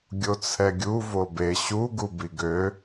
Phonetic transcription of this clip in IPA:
ɡʲ o t͡sʰ ɛ ɡʲ u v o b e ɕ u ɡ u b i ɡ ø

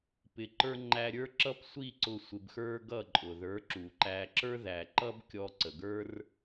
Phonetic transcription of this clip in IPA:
p ɪ˨ ǃ ə˞˧ ŋ͡ǃ æ˧ ɾʲ ə˞˦ ǁ ʌ˦ p sʷ i˦˨ ǀ ʊ˧ sʷ ɪ˧ b x ə˞˦ ɡ ʌ˦˨ ǃʼ ʊ˨ ð ə˞˨˦ ǁ u˨ ǃ æ˧ ǁ ə˞˦ ð æ˨ ǃ ʌ˦ b kʲ ɔ˧ ǀ ə˨ ɡ ə˞˦ r

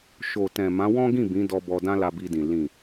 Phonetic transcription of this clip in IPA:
ʃ o˨ t ɛ̃˨ m ã˨˦ w ɔ̃˦ ɡ ĩ˦˨ b ĩ˨˦ d ɔ˧ b ɔ˧ d ã˦ l a˧ b i˧ d ĩ˨ l ĩ˨

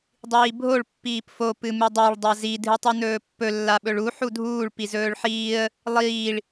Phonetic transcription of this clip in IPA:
dˤ iː bʱ o ɭ pː iː p f o p ɨ m ɨ dˤ a ɭ dˤ a z i dʱ ɨ tˤ u n ɵː pː ɵ lː a ɓ ɵ ɭ u ħ u dʱ uː ɭ p i z ɵː ɭ ħ iː ə̯ | lˠ iː ɭ

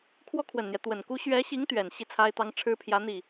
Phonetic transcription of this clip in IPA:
kʰ w ɔ˥ kʰ w ə˨˩ n n̪ j ɛ˦ t̪ w ə˨˩ n k u˥ ɕ ɥ ɛ˧˥ ɕ i˧˥ ŋ t̪ ɥ ɛ˨˩ n ɕ i˥˩ t͡sʰ a˥ ɪ̯ t̪ ɑ˧˥ ŋ ʈ͡ʂʰ ɻ̩˥ pʰ j ä˧˥ n̪ i˥˩

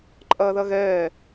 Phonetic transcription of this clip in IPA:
ǃʼ ɐː ð ɐ ɣ ɛː

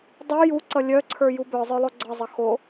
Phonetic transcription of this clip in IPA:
dˤ ə˞ j u ǀ ʌ lʲ œ ǀʰ ə˞ j u b œ zˤ œ lˠ o ɡ͡ǀ ʌ zˤ ʌ x o

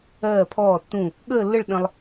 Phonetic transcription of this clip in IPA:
ɜː˧˩ pʰ ɔː˧˩ tː ũ˧˩ | ɠ əː˥˧ lː ə˥˧ ɭ ɗ ə̃˧ lˠ

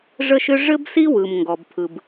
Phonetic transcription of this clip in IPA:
ʐ ə˥ ʃ ʏ˥ ʐ ɘ˥ b s i˥ w ɯ˩ m ŋ ɡ ɔ˩ b pʰ ɯ˩ b

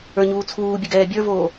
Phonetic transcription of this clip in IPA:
ə˞ ɲ uː t͡sʰ uː bʲ ə ɡ ɛː bʲ ə˞ v oː

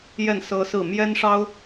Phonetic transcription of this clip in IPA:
j ɛ˥˨ n s ɤ˦ s ɹ̩˥˨ m j ɛ˦ n ʂ ɑ˦ ʊ̯

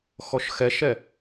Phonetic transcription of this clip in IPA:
x ɔ ʃ x ɛ ʃ ɛ

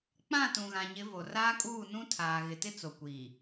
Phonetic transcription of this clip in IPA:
k͡p ã˦˨ t ũ˨ ɣ ã˨ ɲ ɪ˨˦ v o˨ r aː˦ kʼ uː˦˨ n ũ˦ tʰ aː˨ ɣ ɪ˨ t ɪ˦ t͡s o˨ kʷ iː˨

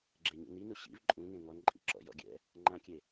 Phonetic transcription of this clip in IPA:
ɡ͡ǁ e ɲ ṵ n i n u ɕ ḭ v ǃʼ ũ ŋ ẽ ŋ ɔ n ǃʼ ḭ ǁ ɔ̰ j ɔ̰ ɡʲ ɛ̰ | ŋ͡ǃ ã kʲ e

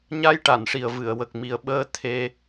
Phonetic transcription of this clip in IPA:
ɲ a˧ j ʈ a˨˩˨ n ʂ i˨˩ ə̯ v ɨ˨˩˨ ə̯ w ə˨˩ k̚ m i˨˩ ə̯ ɓ əː˧˥ t̪ʰ e˧

